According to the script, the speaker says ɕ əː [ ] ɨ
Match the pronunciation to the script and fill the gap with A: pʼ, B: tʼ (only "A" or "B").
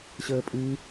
A